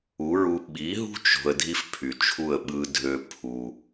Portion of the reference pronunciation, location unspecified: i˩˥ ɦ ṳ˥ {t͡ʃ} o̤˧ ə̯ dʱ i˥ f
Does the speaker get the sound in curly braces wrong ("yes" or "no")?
no